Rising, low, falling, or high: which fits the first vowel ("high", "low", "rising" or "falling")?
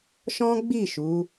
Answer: high